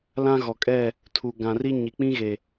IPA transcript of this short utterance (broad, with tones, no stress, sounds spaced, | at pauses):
l ã˦ ɣ ɔ˨ kʼ ɛ˦˨ | tʰ u˨ ɡ ã˨ r i˦ ɲ i˨ k͡p ĩ˦ ɣ e˨